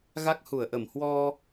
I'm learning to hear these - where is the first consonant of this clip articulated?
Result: velum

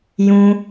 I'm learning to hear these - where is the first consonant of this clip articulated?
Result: palate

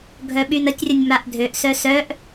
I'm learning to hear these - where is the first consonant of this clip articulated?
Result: velum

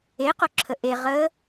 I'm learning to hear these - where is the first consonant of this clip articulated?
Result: uvula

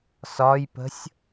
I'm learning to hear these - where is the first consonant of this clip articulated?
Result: tongue tip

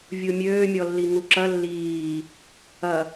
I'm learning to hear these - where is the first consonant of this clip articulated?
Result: lips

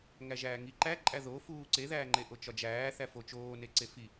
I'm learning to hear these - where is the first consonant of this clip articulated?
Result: velum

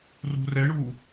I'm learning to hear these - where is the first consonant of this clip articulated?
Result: tongue tip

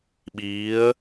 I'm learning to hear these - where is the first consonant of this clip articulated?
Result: lips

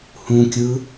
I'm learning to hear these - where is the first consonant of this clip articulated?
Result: throat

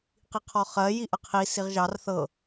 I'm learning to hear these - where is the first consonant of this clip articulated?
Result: uvula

